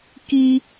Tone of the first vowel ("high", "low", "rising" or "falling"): low